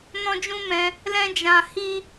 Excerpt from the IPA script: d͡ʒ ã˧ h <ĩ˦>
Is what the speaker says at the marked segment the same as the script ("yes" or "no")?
no